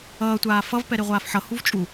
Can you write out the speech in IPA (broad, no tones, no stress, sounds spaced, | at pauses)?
ʌː tʷ aː f ʌ v p ɛ ɾ e ʁʷ aː f ħ ʌ h u v t͡ʃʼ u